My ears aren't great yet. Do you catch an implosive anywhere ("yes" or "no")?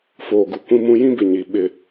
yes